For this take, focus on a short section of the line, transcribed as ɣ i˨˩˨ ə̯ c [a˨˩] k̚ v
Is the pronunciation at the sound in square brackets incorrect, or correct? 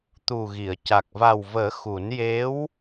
correct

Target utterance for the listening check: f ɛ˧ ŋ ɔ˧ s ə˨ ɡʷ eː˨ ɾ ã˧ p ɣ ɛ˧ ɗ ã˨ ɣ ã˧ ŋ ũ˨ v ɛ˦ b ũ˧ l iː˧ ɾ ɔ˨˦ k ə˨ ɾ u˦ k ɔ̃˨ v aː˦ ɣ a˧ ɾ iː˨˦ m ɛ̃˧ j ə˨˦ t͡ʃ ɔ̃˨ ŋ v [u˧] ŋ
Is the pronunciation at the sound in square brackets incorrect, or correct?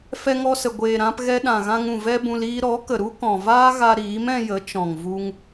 correct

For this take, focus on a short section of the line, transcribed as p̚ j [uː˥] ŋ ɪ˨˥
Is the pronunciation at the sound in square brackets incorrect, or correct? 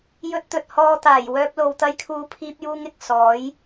correct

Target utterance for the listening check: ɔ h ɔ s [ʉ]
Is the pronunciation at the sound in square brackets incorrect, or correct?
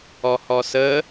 incorrect: ə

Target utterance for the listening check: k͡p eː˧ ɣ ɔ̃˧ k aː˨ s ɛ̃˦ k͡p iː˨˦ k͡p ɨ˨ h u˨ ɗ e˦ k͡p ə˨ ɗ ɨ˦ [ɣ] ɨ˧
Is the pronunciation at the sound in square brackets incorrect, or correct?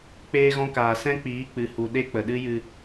incorrect: j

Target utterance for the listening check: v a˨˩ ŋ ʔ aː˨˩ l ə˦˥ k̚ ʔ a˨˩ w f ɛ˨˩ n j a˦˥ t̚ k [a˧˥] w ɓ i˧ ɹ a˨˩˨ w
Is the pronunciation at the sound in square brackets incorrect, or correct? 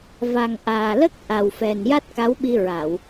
correct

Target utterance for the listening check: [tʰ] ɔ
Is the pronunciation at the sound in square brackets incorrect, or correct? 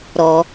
incorrect: ɾ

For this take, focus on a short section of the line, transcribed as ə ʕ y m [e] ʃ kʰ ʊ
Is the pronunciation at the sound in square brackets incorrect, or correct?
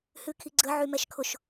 incorrect: ɛ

